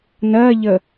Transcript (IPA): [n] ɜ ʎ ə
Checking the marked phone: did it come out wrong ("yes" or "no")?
no